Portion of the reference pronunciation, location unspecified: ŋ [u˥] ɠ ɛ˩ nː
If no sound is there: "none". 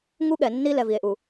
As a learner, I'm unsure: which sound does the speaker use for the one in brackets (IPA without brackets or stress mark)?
u˥